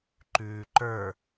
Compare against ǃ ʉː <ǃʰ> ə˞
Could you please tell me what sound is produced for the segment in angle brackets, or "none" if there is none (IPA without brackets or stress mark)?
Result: ǃ